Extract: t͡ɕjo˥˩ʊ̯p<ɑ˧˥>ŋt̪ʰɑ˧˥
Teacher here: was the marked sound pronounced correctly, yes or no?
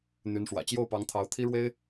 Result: yes